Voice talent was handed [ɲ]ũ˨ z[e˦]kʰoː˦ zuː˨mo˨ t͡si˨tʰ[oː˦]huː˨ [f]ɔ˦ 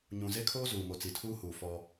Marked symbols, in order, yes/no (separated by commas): yes, yes, no, yes